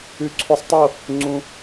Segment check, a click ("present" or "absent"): present